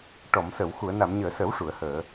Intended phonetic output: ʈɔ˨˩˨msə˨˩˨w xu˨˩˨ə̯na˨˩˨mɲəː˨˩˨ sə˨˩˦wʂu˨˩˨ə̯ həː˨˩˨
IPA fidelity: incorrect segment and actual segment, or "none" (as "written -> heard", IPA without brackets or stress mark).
none